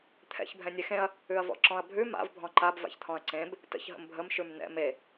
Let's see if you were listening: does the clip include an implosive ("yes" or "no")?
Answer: no